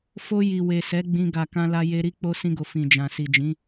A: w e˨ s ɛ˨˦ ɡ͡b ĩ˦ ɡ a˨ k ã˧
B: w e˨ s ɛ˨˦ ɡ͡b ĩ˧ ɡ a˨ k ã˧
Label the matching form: B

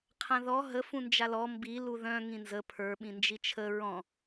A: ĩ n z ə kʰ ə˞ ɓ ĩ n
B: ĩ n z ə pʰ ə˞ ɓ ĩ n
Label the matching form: B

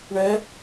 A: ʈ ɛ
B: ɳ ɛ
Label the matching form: B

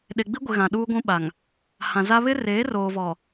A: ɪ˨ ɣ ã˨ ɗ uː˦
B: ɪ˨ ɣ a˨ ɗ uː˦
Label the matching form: A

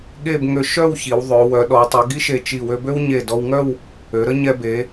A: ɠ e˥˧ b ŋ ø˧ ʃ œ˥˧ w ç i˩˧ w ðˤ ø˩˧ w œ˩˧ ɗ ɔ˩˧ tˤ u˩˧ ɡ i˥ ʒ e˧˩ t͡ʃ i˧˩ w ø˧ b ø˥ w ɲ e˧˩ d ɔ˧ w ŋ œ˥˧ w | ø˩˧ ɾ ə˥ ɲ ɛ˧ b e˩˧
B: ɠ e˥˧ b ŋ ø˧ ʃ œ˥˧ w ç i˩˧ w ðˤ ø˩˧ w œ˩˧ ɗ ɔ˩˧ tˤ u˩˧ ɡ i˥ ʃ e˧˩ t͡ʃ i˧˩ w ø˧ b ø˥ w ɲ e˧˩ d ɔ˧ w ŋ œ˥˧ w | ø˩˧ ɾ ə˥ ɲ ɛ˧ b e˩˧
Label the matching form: B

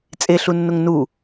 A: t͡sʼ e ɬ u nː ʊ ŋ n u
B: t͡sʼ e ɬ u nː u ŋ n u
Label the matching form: A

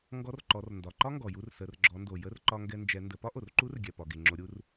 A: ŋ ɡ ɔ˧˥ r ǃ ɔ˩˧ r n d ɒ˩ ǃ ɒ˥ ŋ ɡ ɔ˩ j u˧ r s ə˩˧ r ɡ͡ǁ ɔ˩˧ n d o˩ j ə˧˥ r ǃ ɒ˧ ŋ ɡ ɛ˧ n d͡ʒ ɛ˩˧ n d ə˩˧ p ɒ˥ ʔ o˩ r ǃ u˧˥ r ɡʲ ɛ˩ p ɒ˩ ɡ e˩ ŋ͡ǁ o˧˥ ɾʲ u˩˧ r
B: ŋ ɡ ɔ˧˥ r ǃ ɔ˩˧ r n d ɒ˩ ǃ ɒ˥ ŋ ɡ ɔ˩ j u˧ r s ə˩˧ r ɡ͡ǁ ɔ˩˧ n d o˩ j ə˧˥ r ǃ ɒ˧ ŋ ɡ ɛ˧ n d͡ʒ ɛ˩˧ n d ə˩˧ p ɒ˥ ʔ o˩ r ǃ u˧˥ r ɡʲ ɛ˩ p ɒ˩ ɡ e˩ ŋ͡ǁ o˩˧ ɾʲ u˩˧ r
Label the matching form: B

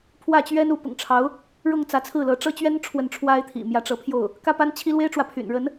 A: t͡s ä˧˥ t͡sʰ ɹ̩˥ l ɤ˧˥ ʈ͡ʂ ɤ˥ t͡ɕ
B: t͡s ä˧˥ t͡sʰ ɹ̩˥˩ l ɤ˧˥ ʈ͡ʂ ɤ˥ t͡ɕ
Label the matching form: B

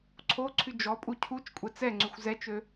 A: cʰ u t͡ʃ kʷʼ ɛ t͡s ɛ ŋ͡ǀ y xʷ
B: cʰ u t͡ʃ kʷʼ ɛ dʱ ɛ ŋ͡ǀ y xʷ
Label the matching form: A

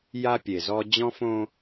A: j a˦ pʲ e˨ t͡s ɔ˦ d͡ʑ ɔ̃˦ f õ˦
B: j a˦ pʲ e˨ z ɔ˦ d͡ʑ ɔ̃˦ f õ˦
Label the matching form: B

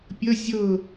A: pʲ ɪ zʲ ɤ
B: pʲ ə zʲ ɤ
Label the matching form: B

